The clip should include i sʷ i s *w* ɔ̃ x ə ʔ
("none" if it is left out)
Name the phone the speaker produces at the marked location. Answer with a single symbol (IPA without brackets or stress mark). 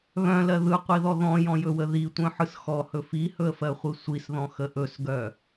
ð